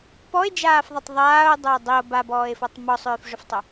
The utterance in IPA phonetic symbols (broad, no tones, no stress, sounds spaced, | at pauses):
p ɔ e̯ d͡ʒ aː f ðˤ i tˤ ðˤ aː o̯ dˤ ʏː dˤ i o̯ b a b ɔː e̯ f ɔ tˤ m ɔ sˤ ʏː f ʐ ʏ f tˤ ʏ